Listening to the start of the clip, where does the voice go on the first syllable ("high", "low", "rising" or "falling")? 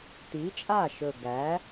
rising